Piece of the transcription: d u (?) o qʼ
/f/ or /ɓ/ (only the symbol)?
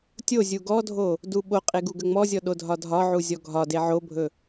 ɓ